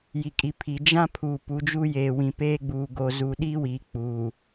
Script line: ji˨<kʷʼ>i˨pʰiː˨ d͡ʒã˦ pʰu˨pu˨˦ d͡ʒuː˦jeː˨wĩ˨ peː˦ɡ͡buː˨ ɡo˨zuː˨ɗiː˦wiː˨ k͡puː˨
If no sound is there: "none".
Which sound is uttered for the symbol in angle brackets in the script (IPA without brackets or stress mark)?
kʼ